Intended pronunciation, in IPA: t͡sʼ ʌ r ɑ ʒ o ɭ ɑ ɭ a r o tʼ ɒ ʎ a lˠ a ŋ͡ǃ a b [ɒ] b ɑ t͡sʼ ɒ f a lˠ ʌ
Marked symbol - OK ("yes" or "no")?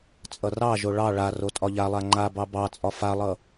no